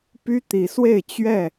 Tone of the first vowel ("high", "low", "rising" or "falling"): high